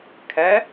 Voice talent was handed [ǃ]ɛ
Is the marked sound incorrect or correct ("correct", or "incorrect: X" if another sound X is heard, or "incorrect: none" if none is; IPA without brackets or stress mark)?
incorrect: kʰ